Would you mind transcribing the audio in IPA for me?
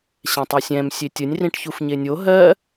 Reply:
ɕ ɛ̃ tˤ o sʲ ɛ̃ m sʲ e tʲ ə nʲ r ĩ ʈ ç u f ɲ e nʲ o ɦ ɜ

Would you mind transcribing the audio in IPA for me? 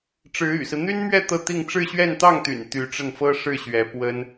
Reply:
ʈ͡ʂ ɻ̩˧˥ y̰˨˩ s ɹ̩˦ n̪ y˥ n m ɥ ɛ˥˧ t̪ ɤ˥˧ t̪ i˥˧ ŋ ʈ͡ʂ ɻ̩˥˧ ɕ ɥ ɛ˥˧ n t̪ ɑ˥˩ ŋ t̪ y̰˨˩ n t̪ y˧˥ ʈ͡ʂ ə˥˩ n f ɤ˥ ʂ ɻ̩˥˩ ɕ ɥ ɛ˧˥ p w ə˥ n

